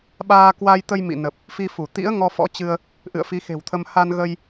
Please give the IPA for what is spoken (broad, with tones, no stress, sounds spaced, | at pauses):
ɓ aː˧ k w a˧ j t̪ ə˧ j m ḭ˧˨ n ə˨˩ p̚ | f i˧ f u˧˩ t̪ ḭ˧˥ ə̯ ŋ ɔ˧ f ɔ̰˧˥ t͡ɕ ɨ˧ ə̯ | ʔ ɨ̰˧˨ ə̯ f i˨˦ x e̤˨˩ w t̪ʰ ə˧ m h a˧ n ɣ ə˧ j